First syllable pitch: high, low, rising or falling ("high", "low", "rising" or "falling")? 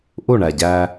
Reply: falling